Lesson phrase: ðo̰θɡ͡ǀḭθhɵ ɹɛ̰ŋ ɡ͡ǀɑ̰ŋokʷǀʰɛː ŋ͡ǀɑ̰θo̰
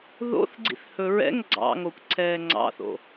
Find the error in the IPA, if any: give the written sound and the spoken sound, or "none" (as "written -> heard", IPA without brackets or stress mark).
none